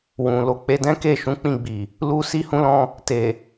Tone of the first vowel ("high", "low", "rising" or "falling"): low